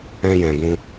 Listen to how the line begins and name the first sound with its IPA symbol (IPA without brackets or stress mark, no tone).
ɛ̃